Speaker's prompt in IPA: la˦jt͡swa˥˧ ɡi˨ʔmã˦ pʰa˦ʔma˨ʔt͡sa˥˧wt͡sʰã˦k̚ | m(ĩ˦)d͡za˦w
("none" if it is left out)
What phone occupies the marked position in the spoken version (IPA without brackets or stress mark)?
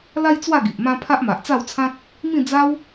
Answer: ĩ˥˧